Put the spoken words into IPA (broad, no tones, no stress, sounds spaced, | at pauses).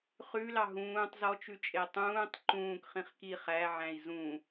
χ ʉ l ɑ ɦ ũː tˤ z ɔ t͡ʃ ʉ t͡ʃʼ e tˤ ũː tˤ ǃ ũː k χ ĩ χ k i χ æ ʕ æ̃ i̯ z ũ